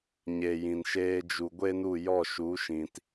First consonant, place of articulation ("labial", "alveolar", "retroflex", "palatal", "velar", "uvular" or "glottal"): palatal